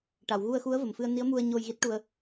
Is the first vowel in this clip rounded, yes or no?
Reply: no